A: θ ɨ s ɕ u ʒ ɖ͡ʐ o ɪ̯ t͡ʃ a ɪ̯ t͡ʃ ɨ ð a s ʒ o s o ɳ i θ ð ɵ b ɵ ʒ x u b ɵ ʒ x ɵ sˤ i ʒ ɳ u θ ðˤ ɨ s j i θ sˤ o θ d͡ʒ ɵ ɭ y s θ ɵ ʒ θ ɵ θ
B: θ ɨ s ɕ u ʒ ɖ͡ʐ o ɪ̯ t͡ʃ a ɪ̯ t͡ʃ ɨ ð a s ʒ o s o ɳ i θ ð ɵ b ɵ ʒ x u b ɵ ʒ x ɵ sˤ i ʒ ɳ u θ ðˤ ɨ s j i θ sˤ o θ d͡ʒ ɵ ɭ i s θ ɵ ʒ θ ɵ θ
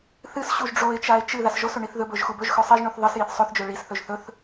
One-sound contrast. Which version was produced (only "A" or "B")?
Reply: B